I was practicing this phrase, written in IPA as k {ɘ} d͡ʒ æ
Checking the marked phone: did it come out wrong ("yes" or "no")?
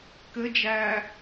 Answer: no